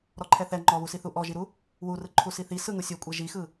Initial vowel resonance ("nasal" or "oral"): oral